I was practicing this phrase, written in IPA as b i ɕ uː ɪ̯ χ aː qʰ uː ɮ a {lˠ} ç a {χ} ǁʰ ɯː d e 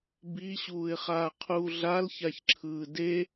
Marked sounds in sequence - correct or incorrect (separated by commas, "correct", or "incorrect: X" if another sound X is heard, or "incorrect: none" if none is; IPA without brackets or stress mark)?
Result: incorrect: l, incorrect: ç